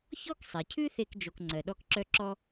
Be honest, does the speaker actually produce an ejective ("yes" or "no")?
no